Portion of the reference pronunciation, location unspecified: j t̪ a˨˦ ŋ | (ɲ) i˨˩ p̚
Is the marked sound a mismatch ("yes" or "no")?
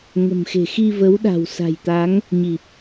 no